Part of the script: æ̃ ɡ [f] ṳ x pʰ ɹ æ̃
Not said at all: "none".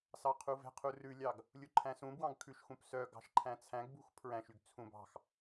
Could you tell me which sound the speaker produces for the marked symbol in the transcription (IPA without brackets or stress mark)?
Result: b